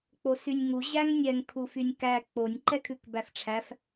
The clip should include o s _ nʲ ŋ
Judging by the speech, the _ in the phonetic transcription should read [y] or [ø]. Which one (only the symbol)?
y